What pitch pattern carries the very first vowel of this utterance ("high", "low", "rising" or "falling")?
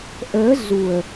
rising